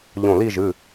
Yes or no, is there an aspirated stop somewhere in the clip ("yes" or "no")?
no